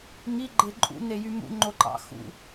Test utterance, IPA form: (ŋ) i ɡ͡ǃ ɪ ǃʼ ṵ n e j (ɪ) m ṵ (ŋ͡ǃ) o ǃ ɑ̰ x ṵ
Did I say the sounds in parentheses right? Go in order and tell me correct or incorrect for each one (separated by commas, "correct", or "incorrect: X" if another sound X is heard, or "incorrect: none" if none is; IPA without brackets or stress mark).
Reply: correct, incorrect: y, correct